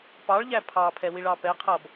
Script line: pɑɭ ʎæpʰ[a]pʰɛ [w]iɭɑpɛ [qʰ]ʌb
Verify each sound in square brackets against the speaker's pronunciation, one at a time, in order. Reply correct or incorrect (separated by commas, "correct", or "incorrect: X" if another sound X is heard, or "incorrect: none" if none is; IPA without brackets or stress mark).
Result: incorrect: ɑ, correct, correct